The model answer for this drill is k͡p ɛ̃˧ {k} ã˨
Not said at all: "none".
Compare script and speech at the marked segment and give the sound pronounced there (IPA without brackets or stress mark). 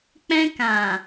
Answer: k